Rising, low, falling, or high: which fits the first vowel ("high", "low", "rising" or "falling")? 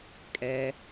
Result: low